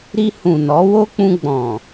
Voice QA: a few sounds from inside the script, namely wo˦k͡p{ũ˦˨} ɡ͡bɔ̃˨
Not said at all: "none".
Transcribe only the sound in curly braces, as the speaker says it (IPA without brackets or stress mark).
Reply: ũ˧